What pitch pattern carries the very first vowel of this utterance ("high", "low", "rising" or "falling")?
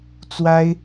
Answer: high